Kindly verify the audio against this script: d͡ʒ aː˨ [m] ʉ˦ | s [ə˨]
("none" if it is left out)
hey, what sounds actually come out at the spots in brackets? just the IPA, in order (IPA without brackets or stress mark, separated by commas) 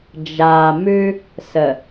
m, ə˨